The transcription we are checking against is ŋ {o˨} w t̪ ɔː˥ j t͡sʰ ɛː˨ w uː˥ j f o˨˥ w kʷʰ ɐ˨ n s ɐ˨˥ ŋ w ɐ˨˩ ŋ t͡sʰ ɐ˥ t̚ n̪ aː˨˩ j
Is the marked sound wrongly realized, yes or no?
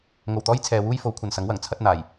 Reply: yes